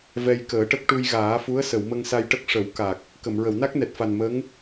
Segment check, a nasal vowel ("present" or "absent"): absent